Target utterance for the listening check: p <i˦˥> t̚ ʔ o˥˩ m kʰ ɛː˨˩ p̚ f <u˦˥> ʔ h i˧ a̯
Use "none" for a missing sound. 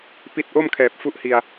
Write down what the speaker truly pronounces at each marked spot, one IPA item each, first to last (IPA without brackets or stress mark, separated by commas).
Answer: i˦˥, u˦˥